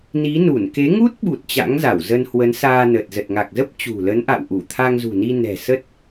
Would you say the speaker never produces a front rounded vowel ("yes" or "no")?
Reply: yes